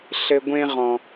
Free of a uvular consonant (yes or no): no